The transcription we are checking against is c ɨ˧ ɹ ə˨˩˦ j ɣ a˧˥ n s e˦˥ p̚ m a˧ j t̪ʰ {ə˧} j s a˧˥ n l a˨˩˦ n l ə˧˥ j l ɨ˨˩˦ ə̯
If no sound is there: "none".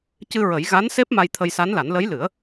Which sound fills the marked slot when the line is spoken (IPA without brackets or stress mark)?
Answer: ə˧